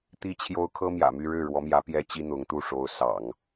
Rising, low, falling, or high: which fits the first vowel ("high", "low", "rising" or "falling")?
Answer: high